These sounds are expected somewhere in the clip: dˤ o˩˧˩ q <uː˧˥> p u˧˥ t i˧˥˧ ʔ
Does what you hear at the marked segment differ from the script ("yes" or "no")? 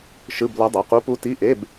yes